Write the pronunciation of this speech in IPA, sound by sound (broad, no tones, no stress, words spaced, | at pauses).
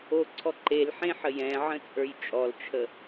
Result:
oǀʰɔ ǃelħẽħəj ɛ̃ʕə̃t͡sʼə˞j t͡ʃʼɔlt͡ʃʰə